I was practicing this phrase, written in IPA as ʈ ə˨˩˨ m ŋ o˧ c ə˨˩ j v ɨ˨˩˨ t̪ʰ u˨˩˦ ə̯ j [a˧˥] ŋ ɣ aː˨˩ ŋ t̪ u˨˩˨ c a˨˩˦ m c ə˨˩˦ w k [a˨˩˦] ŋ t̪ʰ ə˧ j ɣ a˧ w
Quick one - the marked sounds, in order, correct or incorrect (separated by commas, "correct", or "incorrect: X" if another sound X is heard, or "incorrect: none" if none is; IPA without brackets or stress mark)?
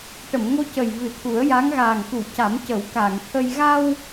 correct, incorrect: a˨˩˨